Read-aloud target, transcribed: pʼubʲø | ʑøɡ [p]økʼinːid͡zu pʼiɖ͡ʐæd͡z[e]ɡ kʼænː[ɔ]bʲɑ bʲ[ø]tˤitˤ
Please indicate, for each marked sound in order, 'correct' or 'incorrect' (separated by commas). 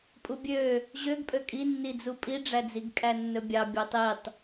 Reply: incorrect, incorrect, incorrect, correct